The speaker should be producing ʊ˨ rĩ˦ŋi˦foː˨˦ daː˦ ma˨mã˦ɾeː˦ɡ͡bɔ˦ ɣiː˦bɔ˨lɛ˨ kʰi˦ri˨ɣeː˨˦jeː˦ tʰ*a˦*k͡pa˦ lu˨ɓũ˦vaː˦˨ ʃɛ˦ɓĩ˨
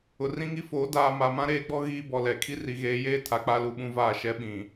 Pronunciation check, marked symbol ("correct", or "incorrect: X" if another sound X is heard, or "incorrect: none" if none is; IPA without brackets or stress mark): incorrect: a˨˦